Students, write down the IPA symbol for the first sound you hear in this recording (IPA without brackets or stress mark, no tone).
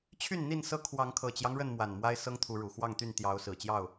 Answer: t͡ɕʰ